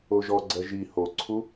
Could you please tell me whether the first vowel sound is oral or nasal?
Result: oral